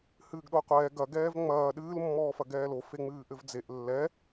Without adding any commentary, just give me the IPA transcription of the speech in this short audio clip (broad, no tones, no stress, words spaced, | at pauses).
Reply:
hɨːɡɗoqʷɛː ɡɐɡɛːv ŋ͡mɐː ɗɨːlmːɔːfɐ ɡɛːlo feŋ͡mɨːʔɘvd͡zeʔ lːɛ